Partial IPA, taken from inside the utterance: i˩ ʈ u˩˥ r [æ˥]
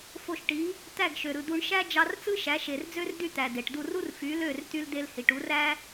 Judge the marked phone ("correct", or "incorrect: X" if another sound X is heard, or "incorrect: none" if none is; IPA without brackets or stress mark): correct